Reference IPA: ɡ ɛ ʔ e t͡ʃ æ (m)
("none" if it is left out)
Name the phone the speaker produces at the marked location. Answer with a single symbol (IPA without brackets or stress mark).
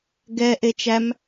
m